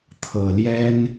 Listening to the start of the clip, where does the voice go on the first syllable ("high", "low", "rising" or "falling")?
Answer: low